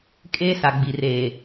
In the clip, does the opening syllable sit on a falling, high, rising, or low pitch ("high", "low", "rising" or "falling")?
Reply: high